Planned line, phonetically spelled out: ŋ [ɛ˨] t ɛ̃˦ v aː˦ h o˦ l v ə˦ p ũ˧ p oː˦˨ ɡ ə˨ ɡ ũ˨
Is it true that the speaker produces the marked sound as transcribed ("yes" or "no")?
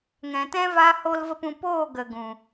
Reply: no